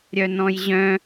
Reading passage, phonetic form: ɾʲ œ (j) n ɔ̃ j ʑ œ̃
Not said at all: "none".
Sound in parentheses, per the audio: none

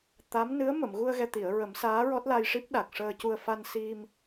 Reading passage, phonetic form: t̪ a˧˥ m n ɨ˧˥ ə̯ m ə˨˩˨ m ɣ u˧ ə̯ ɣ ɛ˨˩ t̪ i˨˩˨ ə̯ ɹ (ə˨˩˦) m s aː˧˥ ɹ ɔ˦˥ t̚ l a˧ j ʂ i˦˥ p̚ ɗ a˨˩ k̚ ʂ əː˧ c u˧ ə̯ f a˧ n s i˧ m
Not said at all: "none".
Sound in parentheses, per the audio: ə˨˩˦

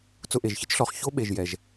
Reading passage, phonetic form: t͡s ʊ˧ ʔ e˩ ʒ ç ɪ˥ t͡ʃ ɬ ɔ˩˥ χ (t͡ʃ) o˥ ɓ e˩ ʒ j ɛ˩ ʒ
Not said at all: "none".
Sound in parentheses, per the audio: ç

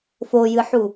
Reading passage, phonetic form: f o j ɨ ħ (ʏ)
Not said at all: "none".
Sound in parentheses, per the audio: u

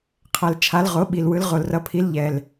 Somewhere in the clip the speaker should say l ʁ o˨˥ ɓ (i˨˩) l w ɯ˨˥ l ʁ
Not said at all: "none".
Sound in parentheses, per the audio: i˨˩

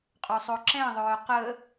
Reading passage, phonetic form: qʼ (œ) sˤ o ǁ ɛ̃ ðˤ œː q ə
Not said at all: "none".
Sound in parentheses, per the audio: ø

